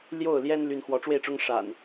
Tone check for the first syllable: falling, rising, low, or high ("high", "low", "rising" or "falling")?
falling